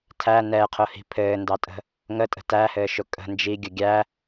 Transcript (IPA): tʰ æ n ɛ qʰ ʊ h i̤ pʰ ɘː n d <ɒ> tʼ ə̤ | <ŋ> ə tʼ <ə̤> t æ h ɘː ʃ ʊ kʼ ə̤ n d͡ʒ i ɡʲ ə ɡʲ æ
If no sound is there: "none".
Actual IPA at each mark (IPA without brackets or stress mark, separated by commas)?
ɑ, ŋ, ə̤